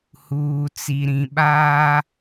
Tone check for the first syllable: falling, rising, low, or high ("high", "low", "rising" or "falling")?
low